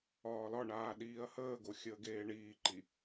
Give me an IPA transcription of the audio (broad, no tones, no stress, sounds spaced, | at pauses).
ɒː l ɒ ɳ aː ɗ iː ɐ̯ h əː ɡ o xʲ əː ɡ eː ɳ iː ǃ i